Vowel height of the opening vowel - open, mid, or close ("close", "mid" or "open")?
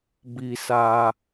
close